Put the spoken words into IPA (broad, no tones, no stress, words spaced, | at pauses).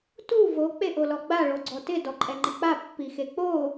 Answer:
tu vo k͡peʔolɔɡ͡ba ɭoɡ͡ǀɔtɪ dɔǃʼɛŋ͡ǃɪk͡pa pːixek͡po